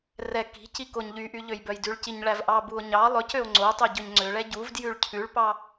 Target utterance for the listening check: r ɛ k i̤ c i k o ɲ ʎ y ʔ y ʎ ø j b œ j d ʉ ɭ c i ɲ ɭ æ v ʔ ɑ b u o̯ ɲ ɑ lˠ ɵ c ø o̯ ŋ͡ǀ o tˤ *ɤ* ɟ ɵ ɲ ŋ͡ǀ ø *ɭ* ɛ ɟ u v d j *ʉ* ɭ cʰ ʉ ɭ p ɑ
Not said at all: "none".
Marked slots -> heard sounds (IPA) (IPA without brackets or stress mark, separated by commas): o, ɭ, ʉ